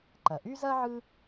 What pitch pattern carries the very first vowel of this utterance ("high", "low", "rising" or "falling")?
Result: low